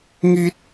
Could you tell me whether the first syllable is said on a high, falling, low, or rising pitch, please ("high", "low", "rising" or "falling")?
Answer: high